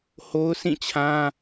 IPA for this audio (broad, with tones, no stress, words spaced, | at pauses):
ho˦ʊ̯sĩ˦˨t͡ɕʰã˦